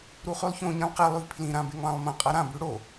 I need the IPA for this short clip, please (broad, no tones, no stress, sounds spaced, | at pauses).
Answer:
ɾ u χ ʉ lˠ ç õ ɲ ĩ lˠ q e lˠ ʉ v pʰ l ĩ ɾ ã b e ŋ lˠ ã lˠ m ɐ̃ qʼ ɐ ɾ ã b ʉ ɽ o